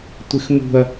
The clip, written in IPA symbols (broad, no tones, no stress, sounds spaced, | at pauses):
tʷ ɪ x m ṳ ɐ̯